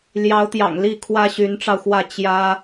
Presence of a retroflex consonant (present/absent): present